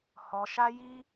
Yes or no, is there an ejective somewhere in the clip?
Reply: no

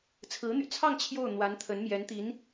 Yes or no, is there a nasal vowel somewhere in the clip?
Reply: no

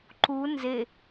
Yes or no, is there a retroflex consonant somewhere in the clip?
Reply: no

